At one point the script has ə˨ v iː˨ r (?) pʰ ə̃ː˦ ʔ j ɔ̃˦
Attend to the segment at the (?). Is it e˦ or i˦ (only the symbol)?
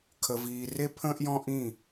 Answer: e˦